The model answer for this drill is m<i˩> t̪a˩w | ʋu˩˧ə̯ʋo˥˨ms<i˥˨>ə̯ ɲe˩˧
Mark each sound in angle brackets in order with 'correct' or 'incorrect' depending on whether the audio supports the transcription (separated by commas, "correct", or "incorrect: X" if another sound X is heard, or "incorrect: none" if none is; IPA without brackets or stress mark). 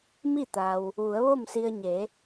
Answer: incorrect: i˥˨, incorrect: i˧